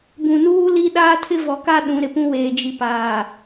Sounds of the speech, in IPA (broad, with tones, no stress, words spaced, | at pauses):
bũ˨nuː˦li˦ɗaː˦ tʰɪ˦vɔ˨ka˦ ɗũ˨˦ɾɪ˨pũ˦ weː˨d͡ʒi˨paː˨